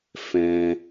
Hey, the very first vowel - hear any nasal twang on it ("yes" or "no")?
yes